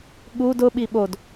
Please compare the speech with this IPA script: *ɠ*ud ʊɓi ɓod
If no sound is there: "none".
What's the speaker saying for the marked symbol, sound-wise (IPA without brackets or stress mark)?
ɠ